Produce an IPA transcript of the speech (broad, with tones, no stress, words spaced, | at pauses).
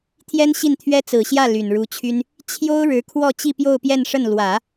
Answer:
t̪ʰjɛ˥nɕi˥˩nt̪ʰɥɛ˥ t͡sɹ̩˨˩ɕjä˥˩ ly˨˩nɻu˧˥t͡ɕʰy˥n | t͡ɕʰjo˥ʊ̯ɻɻ̩˧˥kʰwɔ˥˧ t͡ɕi˥˧pjo˥˧ʊ̯pjɛ˥˧nʂə˥˩n lwä˨˩˦